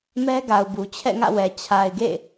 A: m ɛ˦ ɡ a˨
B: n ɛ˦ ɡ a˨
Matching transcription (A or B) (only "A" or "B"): A